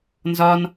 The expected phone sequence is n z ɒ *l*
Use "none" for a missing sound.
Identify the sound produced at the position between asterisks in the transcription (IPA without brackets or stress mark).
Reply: n